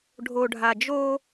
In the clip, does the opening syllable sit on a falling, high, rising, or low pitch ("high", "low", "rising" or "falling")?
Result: low